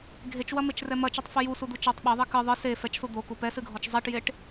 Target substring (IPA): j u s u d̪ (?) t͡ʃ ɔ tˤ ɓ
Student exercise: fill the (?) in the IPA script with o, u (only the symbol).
u